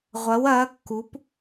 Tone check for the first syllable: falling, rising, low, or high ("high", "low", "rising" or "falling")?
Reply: rising